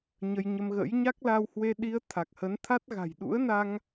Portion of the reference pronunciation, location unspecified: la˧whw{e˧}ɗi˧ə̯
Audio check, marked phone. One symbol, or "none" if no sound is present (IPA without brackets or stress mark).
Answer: e˧